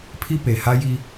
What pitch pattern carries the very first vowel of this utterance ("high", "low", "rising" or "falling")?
high